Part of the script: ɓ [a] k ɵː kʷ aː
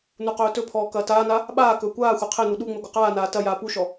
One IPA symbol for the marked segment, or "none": aː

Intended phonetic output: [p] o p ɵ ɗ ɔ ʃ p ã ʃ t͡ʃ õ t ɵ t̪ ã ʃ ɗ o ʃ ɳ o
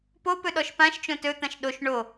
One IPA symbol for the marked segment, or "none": p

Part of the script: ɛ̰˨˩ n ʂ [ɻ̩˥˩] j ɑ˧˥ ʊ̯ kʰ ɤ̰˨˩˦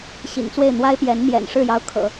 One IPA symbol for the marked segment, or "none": ɻ̩˥˩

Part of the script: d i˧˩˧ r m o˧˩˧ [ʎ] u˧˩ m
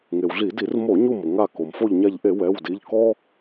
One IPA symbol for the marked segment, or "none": ɲ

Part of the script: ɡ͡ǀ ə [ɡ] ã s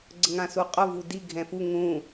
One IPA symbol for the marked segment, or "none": ŋ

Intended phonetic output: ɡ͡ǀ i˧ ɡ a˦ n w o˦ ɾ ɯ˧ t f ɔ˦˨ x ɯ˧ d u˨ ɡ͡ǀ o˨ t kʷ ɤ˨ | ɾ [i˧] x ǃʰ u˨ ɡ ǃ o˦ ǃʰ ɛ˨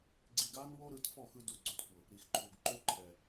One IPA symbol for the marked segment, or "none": i˨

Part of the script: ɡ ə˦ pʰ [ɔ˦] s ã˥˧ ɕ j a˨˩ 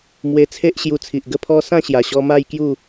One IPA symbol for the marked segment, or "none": ɔ˦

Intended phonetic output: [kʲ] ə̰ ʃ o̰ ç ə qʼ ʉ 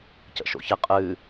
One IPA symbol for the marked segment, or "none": c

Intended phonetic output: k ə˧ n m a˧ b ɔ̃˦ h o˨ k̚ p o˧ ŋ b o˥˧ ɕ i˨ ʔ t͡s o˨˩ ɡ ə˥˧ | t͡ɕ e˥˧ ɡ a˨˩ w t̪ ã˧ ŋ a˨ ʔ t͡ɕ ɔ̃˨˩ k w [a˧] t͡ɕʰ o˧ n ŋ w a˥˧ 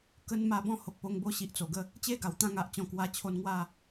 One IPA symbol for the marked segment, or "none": a˧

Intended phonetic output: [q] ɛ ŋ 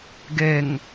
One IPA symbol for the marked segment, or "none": ɡ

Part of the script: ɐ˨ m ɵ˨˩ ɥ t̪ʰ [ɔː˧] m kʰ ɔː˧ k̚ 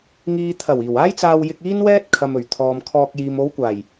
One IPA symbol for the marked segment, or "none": ɔː˨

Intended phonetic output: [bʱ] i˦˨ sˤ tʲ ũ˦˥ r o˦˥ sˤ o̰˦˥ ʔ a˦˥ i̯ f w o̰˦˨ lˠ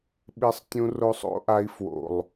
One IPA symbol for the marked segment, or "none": ɓ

